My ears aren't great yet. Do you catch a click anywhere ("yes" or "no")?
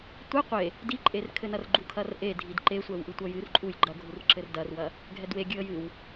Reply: yes